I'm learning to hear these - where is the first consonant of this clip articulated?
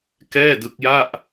velum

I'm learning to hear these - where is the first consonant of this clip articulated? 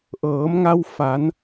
throat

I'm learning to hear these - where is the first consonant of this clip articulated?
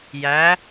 palate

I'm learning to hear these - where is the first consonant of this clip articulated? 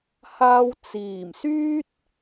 throat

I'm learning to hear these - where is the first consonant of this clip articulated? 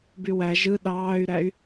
lips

